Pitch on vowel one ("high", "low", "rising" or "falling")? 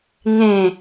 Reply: falling